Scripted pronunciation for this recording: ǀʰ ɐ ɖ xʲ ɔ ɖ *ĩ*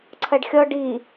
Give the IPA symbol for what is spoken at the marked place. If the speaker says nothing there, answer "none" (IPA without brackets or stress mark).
i